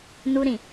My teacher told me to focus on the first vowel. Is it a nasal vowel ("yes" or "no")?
no